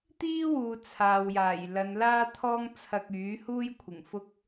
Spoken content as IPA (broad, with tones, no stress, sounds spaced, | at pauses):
t̪ iː˥ w uː˨ t͡sʰ aː˨ w j aː˨˩ j l ɐ˨˧ n l aː˥ t̪ʰ ɔː˥ ŋ t͡sʰ ɐ˧ k̚ yː˨˥ h uː˥ j kʷʰ ɪ˨˩ ŋ f ʊ˥ k̚